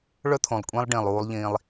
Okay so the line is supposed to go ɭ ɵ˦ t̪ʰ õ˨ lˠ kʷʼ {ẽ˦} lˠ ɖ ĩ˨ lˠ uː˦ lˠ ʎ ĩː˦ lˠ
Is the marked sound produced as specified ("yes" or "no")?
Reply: yes